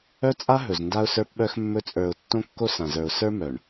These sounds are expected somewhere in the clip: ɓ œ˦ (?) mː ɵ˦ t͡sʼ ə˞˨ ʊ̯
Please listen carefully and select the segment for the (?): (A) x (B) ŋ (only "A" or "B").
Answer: A